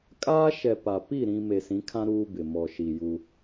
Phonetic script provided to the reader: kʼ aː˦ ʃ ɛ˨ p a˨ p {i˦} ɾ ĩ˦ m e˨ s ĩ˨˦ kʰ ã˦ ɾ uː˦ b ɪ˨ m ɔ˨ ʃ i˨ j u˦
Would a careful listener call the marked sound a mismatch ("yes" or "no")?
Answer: yes